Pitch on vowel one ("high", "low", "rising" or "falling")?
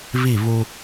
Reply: falling